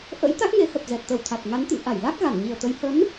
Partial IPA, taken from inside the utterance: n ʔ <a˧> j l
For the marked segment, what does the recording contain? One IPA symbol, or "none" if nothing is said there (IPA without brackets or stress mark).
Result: a˧˩